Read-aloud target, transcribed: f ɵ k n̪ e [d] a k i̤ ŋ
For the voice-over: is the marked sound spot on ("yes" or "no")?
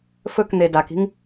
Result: yes